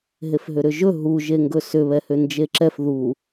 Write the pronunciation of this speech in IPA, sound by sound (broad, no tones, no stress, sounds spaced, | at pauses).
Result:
ɦ e f ɦ ʏ ɾ ʏ ʒ ɵ ɦ u ʒ e ŋ ɡ ɵ s ʏ β ɛ h ʏ n d͡ʒ e ǁ ɛ f ð u